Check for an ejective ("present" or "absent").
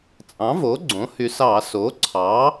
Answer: present